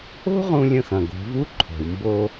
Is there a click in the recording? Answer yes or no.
yes